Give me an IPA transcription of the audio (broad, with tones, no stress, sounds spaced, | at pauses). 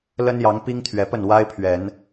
l ə˦ n j ɑ˨˦ ŋ p i˦ ŋ t̪ʰ ɥ ɛ˨˩ p ə˥˨ n w a˦ ɪ̯ pʰ ɥ ɛ˨˦ n